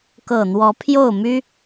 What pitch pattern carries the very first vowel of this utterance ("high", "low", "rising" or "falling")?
low